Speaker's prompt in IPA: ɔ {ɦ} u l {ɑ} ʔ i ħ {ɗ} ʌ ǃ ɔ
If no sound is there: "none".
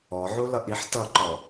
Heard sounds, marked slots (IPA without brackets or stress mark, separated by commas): ʕ, ʌ, t